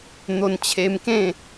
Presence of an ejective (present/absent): absent